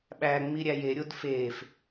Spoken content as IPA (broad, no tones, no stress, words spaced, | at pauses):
ɓæ ŋ͡miɾʲæjeɾʲod fef